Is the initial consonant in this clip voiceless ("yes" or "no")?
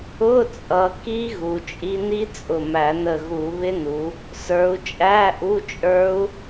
yes